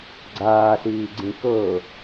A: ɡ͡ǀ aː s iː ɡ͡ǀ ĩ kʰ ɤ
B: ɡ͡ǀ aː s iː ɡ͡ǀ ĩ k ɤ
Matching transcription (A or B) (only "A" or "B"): B